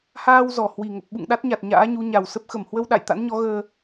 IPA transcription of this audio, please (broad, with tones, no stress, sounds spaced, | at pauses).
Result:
h aː˧ w z ɔ˨˩ h w i˨˩ ŋ ə˨˩ p̚ ɓ ṵ˧˨ ŋ ɗ a˦˥ t̚ ɲ a˨˩ t̚ ɲ a̰ː˧˥ ɲ u˨˦ ɲ a˨˩ w s ə˦˥ p̚ x ə˧˩ m h w ə˧ w ɗ a̰˧˨ j t̪ a̰˧˥ n ɲ ɔ˨˦ ɣ əː˧